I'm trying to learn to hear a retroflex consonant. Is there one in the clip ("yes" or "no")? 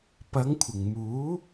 no